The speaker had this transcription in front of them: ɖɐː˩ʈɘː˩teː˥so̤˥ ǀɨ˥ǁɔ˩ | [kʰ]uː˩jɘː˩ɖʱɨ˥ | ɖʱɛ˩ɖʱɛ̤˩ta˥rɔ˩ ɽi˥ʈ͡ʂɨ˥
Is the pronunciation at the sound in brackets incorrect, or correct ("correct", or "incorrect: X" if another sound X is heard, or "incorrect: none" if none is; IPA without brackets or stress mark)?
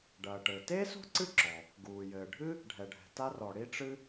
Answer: incorrect: ɡ